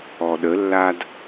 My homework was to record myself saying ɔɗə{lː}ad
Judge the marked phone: correct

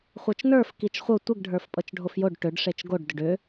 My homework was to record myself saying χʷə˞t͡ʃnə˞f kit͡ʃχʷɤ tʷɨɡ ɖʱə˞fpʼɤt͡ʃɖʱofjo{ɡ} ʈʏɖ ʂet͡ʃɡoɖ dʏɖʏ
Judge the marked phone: incorrect: ɖ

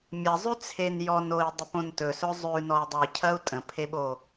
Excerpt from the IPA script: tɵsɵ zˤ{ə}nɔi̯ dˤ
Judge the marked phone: incorrect: ʉ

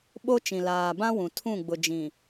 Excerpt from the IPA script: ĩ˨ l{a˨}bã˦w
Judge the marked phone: incorrect: aː˨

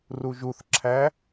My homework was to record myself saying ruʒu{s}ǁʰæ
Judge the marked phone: incorrect: θ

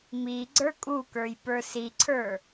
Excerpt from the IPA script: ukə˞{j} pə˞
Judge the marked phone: correct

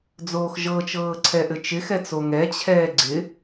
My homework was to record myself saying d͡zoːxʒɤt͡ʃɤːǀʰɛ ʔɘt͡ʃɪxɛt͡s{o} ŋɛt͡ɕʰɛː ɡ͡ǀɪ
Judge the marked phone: correct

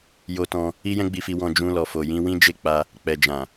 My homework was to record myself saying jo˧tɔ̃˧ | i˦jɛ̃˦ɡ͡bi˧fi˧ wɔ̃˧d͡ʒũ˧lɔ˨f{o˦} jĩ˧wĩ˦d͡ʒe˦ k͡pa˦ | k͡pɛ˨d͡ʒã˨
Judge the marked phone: incorrect: o˨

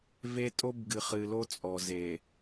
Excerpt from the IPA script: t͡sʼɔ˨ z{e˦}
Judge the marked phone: incorrect: e˨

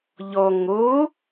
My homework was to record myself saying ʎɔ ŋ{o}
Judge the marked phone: correct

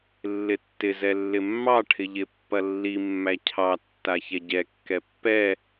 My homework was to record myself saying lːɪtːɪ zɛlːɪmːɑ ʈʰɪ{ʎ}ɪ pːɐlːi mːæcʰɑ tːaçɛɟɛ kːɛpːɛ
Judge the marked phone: correct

